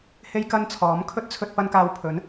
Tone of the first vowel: high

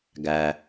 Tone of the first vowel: low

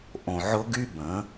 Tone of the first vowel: low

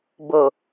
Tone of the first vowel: low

